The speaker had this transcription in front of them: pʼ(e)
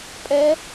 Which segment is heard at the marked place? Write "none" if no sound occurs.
ɛ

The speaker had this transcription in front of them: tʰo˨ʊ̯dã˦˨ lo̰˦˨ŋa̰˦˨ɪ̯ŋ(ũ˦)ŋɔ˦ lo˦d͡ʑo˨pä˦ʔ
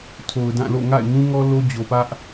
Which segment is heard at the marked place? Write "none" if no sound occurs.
ũ˦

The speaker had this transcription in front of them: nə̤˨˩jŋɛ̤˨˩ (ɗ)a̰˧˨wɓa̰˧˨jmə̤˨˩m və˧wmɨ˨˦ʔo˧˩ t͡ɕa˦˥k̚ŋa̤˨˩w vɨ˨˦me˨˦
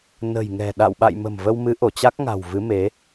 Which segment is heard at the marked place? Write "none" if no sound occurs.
ɗ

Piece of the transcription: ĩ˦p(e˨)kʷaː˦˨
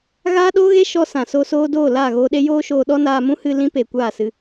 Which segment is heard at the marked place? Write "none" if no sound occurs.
e˨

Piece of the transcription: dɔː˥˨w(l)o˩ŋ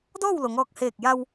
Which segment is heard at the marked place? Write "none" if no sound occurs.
l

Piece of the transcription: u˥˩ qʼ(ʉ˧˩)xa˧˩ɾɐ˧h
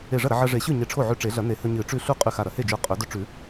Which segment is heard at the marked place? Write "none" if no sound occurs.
ʉ˧˩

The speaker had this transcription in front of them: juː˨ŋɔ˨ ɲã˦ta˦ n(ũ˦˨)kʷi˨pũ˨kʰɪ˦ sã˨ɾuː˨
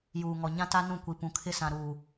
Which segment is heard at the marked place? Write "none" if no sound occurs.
ũ˦˨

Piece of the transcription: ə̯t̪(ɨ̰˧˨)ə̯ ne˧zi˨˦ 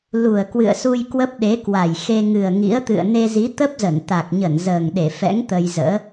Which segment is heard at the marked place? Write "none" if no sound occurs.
ɨ̰˧˨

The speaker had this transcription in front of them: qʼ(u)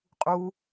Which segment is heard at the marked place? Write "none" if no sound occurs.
u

